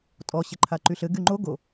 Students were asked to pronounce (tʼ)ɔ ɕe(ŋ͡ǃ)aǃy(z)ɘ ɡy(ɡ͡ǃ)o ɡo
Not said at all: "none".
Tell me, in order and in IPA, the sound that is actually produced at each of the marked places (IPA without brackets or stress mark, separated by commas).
tʼ, ǃʰ, ɬ, ŋ͡ǃ